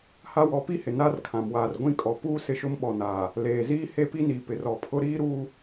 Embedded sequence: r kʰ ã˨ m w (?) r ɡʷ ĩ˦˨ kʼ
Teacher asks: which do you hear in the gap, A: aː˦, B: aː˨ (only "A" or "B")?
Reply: B